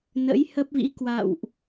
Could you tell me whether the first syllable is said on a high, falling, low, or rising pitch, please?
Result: rising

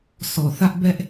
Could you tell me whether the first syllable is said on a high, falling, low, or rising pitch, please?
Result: low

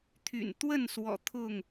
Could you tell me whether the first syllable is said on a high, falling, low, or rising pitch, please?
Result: low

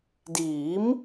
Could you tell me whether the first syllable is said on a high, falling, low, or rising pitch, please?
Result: rising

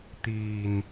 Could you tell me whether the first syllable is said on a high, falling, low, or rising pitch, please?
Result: low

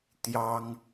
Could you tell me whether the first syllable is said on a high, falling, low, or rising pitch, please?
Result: high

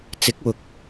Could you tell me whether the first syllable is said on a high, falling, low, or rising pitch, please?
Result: rising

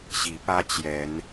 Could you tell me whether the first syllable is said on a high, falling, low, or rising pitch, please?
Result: rising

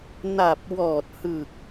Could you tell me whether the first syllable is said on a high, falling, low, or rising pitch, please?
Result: low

